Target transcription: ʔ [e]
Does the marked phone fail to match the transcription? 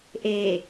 no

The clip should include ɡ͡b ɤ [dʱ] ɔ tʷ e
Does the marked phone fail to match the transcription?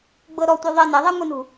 yes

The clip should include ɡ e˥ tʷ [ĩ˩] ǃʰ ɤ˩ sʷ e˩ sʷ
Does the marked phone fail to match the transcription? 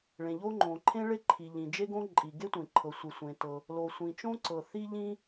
yes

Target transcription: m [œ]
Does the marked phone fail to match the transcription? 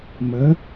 yes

